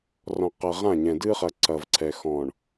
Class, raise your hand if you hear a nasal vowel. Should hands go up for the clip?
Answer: yes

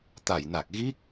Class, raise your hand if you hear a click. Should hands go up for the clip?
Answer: no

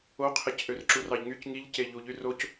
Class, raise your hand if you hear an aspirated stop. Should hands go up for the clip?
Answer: yes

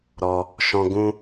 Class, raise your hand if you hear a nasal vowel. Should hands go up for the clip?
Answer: yes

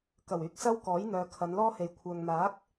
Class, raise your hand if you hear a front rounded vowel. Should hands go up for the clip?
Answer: yes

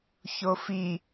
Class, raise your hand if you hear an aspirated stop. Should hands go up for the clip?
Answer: no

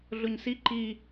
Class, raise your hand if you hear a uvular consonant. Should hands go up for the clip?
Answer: no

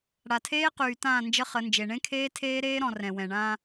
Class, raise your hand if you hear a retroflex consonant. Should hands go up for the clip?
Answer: yes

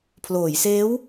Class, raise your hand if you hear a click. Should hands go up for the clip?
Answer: no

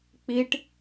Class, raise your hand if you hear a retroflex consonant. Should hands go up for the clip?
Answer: yes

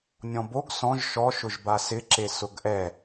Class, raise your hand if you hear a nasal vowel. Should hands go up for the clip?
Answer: yes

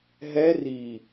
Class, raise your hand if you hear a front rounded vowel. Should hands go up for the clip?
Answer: no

